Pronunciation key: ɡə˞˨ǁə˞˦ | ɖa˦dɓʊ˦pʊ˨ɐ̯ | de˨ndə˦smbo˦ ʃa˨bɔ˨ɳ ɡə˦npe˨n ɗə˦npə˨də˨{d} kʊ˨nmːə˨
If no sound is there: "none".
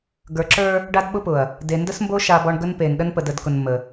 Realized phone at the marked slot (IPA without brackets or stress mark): d